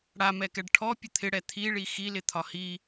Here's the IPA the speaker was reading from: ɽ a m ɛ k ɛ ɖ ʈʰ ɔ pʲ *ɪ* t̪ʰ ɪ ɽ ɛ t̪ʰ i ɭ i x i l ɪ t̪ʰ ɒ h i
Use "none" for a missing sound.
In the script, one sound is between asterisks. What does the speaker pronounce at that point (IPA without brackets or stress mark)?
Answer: ə